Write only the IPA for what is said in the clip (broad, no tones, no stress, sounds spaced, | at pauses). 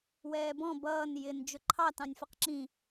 w ɛː b ɔ̃ b ʌː n j ɪ n d͡ʒ ʊ ǃʰ ɑ t ɑ̃ nʲ f ʊ q ǁ ĩ